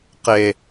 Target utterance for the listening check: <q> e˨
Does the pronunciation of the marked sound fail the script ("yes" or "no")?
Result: no